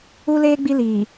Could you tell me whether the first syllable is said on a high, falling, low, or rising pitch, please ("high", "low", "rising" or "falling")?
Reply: high